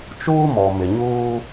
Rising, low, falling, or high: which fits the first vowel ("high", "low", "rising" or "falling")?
high